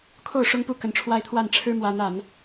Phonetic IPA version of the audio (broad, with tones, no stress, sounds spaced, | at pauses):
kʰ o˥˩ ʊ̯ ʂ ʊ˥ ŋ p u˥˩ k ə˧˥ n ʈ͡ʂʰ w a˥ ɪ̯ t̪ʰ w a˥˩ n ʈ͡ʂʰ ɻ̩˥ m w a˧˥ n a˨˩˦ n